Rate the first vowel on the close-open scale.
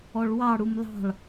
mid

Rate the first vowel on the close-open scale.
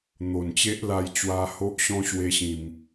mid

